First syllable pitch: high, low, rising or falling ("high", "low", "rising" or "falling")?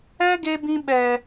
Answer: high